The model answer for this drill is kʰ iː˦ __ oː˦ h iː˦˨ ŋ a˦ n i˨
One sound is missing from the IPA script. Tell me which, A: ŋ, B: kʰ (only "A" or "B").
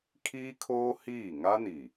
B